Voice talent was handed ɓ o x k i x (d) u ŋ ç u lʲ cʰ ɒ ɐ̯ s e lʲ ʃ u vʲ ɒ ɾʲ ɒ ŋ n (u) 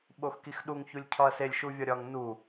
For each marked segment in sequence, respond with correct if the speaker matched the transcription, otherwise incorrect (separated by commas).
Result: incorrect, correct